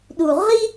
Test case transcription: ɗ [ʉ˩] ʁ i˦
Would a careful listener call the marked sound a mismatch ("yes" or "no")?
yes